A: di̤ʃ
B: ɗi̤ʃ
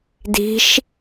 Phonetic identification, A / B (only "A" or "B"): A